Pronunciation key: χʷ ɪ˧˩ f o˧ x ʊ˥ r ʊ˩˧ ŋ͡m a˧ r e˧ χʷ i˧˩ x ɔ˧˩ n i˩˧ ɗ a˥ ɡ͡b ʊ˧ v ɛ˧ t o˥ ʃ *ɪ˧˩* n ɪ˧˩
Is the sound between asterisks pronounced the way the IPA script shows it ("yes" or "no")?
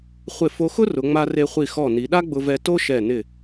no